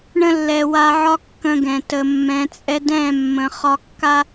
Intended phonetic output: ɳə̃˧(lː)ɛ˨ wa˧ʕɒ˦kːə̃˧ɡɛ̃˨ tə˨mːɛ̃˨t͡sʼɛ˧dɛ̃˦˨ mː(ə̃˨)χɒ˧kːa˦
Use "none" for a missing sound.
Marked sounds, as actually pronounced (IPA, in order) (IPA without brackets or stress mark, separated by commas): lː, ə̃˨